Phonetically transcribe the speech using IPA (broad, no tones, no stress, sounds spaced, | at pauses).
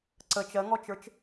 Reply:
ǀ ə t͡ʃ ɜ ŋ ɔ t͡ʃ ə˞ t͡ʃ